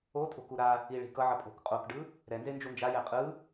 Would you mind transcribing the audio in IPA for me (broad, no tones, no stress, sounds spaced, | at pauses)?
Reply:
o tʼ o̤ k u ɾ a | i ɭ i̤ k ʌ ʕ ʌ pʼ o̤ k qʼ o k ɖ ɯ | ɾ ɛ n z e n d͡ʒ u n d͡ʒ a j ɛ qʼ ɯ